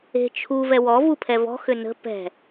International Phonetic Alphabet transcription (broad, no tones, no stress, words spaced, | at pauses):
e̤ t͡ʃʰu vɛwɔ vupʰɛvɔ̤ xʏnə̤ pɛ̤